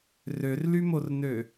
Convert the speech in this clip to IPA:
r ø r l y m o r n ø

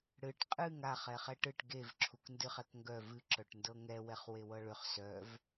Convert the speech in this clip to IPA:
ɽ ɨ ʈ qʼ ɨ ŋ a χ ɛ χ ɛ ʈ ɨ ʈ ɡ e v ǁʰ u k n d ɨ χ ɛ k ŋ ɡ œ v ɨ ǁ œ ʈ n d ɤ ŋ ɛ w ɛ χ w e w ɤ ɭ ʏ χ s œ v

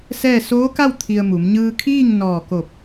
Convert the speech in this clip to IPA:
s ɛː˥˨ s oː˧˥ k a˥˨ w t̪ʰ i˧ ə̯ m u˩˧ m ɲ ɯː˧ kʰ iː˥˨ ŋ n ɔː˧˩ k o˧˩ p̚

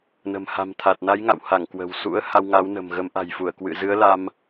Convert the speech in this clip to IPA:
n ə̤˨˩ m h a̤˨˩ m t̪ʰ a˨˩ t̚ n a˨˦ j ŋ a̰˧˨ w h a˧˩ ŋ k w ə̤˨˩ w s ṵ˧˥ ə̯ h a˧ w ŋ a˨˦ w n ə̤˨˩ m ɣ ə˨˦ m ʔ a̤˨˩ j f u˧˩ ə̯ k w ɨ̰˧˨ z ɨ˨˦ ə̯ l a˧ m

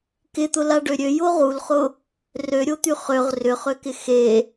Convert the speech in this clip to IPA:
k ɪ t̪ ʊ l a ɖ ø ɾʲ ø j o ʁ u l χ ʊ | r ø ɾʲ o t̪ y χ ø ʁ r ʏ χ ø k ɪ x e

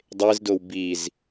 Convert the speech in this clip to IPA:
dˤ e z d o w b i z

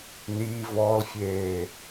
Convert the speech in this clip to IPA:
n i v ɔ l fʲ eː

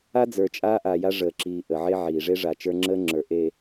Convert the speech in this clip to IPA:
a˦ d͡z ə˞˨ t͡ʃʼ aː˦ ʔ a˨ j a˦ ʐ əː˨ ǁ iː˨ ʔ ə˨ ʕ e˦ ʕ iː˨ ʐ e˦ ʐ a˨ t͡ʃ ə˞˦ ŋ͡ǁ əː˦ ŋ͡ǁ ə˞˨ ʔ e˨

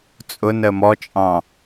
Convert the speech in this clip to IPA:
t͡sʼ ʊ n ə m ɔ t͡ʃʼ ɑ̃

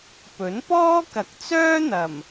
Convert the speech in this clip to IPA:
p ɵ˨˥ n p ɔː˥ k ɐ˨˥ k̚ t͡s œː˥ n̪ ɐ˨˩ m

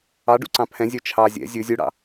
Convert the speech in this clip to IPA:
ɑ ɖ ṵ ǀ ɑ̃ pʰ ɛ̃ zʲ œ t͡ʃʰ ɑ zʲ ɛ̰ zʲ ɵ zʲ u ɽ ɑ̰

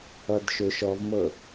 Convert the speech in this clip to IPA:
ʌ d ʃ ʏ ʃ ɔ v m ɤ

